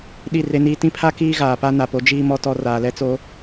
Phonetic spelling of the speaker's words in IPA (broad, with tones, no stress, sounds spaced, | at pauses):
ɗ i˦˨ r e˦ n iː˦ t ĩ˦ pʰ a˦ k iː˦ ɣ aː˨ p a˦ n a˨ p o˦ d͡ʒ iː˦ m ɔ˦ t ɔ˦ r aː˨ l ɛ˦ t͡s o˦